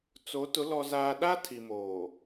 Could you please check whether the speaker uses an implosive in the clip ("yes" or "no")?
yes